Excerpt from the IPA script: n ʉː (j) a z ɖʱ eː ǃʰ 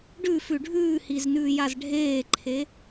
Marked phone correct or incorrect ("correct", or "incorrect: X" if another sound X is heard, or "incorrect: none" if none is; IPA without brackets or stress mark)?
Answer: correct